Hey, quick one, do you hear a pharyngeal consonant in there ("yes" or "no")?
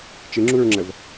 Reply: no